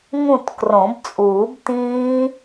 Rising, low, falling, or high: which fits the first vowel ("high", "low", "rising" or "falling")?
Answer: falling